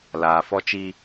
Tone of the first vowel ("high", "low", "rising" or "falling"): low